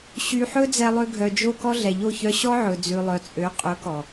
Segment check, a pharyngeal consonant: present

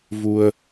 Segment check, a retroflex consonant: absent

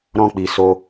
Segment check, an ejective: absent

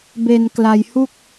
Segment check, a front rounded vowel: absent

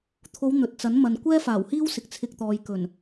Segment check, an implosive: absent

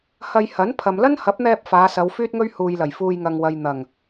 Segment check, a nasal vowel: absent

